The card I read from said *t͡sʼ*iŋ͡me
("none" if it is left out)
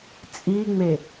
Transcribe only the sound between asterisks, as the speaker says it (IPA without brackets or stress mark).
t͡sʼ